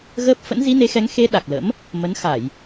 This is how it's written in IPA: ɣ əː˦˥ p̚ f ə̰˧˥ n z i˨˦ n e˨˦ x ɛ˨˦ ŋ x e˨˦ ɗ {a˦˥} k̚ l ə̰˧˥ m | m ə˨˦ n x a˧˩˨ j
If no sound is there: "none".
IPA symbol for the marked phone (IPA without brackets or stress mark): a˨˩